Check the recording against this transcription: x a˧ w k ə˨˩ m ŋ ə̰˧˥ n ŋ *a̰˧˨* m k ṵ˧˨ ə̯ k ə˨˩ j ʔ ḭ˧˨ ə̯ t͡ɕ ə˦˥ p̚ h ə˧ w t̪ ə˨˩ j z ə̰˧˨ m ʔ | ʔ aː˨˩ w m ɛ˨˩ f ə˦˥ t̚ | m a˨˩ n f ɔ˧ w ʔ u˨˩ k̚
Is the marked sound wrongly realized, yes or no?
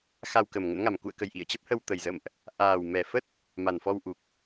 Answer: yes